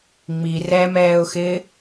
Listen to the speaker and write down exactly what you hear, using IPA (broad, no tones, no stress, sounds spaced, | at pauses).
ŋ͡m i r ɛ m ɛː ʊ̯ x ɪː